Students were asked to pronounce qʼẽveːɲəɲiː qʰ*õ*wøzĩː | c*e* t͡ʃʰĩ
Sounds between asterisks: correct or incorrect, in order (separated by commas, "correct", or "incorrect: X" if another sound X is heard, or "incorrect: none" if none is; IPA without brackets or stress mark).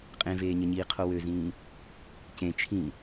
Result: incorrect: o, incorrect: ẽ